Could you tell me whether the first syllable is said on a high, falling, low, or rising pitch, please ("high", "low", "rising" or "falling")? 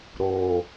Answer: low